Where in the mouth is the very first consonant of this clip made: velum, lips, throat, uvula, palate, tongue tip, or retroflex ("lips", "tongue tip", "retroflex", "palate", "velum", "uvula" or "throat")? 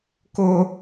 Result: velum